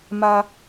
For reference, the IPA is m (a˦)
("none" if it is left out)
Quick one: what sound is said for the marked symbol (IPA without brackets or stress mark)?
a˦